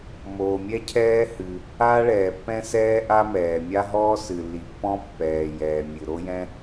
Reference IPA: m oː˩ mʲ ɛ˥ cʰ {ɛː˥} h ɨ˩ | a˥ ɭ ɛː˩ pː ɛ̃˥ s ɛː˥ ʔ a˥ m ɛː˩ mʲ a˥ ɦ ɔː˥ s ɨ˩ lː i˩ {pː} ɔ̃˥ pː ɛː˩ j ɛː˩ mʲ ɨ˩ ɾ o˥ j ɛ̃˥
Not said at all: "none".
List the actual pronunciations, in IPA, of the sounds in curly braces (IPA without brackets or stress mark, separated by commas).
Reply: ɛː˥, pː